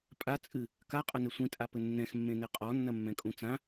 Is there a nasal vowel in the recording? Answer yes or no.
yes